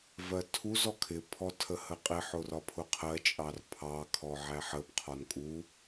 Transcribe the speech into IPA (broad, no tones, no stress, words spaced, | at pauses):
vɜtʰuz ɔkʰɪ pʰɔtʰəhəqʼɪ ħʊrɒpʰʊqʰɜ t͡ʃʼɑrpʰɑ kʰɔʕæħəb qʰɒnkʼu